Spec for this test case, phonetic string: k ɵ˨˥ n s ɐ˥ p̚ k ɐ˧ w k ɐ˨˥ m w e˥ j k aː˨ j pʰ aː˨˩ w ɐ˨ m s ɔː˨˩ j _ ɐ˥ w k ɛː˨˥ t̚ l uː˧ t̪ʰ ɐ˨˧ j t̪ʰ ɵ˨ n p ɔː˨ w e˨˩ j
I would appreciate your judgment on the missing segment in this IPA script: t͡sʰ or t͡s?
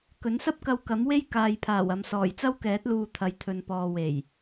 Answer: t͡s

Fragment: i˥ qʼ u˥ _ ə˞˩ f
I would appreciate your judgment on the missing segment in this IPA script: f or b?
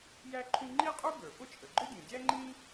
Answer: b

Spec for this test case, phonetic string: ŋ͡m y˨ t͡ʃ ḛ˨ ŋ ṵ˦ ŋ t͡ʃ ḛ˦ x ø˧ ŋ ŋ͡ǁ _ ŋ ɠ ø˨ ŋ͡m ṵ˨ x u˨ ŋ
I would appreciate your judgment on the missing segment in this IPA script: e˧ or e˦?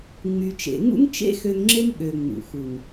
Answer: e˦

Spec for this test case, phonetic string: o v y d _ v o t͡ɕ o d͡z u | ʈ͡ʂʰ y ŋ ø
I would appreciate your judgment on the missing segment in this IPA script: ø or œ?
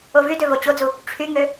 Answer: ø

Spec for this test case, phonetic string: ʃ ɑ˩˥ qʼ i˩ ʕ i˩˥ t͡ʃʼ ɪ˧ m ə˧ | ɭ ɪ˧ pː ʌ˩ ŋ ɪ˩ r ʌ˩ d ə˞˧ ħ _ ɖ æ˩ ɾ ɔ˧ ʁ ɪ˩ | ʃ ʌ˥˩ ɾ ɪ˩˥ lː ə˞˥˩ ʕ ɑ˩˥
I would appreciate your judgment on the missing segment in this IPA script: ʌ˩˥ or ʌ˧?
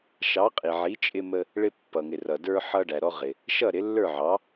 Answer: ʌ˧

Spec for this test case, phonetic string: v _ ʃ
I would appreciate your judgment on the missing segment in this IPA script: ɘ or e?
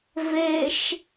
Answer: e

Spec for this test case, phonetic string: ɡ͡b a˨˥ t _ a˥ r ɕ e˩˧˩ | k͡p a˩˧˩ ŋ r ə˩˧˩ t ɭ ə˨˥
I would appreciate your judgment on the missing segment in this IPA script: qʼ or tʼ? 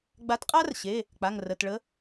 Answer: qʼ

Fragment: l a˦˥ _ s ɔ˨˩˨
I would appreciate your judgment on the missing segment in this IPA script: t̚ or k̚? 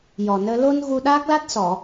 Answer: t̚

